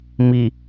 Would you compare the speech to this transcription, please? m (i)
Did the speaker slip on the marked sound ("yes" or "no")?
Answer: no